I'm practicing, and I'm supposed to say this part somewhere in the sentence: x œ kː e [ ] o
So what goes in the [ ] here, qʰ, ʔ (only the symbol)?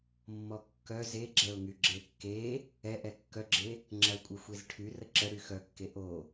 ʔ